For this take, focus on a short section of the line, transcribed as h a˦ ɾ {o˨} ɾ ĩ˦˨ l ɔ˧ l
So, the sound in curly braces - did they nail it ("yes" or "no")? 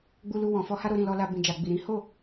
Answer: no